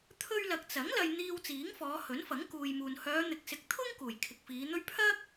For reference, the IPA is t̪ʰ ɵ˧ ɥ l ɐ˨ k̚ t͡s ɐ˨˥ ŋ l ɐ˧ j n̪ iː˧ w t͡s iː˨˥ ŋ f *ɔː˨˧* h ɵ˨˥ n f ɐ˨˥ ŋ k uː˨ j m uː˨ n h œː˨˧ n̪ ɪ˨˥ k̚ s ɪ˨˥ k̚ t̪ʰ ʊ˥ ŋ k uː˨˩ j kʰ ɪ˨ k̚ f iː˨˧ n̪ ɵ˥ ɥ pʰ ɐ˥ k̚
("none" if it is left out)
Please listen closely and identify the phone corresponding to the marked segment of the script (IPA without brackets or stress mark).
ɔː˨˧